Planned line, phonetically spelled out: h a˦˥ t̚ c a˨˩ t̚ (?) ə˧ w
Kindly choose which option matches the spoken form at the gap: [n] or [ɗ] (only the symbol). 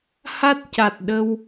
ɗ